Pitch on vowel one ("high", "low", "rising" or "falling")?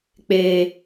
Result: high